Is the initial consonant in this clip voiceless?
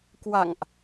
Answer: yes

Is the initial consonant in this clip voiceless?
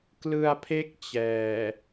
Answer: yes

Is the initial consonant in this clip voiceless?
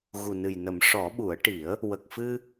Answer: no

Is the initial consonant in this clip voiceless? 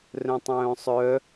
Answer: no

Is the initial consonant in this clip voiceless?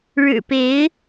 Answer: no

